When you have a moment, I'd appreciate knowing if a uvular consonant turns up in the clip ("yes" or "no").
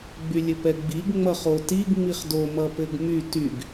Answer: yes